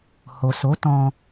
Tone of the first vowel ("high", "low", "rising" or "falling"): low